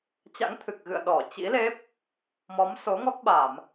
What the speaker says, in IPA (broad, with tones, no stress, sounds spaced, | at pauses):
t͡ɕ a̰˧˥ ŋ t̪ʰ ɨ˨˩ k̚ ɣ ɨ̰˧˨ ə̯ ɗ ɔ˧˩ t͡ɕ ḭ˧˥ l e˦˥ p̚ | m ɔ˨˦ m s o˨˦ ŋ ɔ˦˥ k̚ ɓ a˧˩˨ m